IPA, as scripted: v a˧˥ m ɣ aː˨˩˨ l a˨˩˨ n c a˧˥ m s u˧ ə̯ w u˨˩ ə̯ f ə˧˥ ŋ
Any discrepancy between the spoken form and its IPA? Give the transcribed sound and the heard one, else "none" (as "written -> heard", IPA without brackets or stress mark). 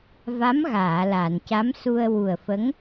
none